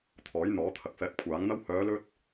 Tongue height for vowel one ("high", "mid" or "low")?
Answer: mid